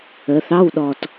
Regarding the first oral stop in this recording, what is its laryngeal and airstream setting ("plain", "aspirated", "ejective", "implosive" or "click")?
implosive